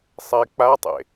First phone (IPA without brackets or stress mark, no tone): sˤ